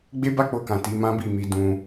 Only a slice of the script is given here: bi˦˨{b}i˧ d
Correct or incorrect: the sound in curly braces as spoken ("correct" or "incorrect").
incorrect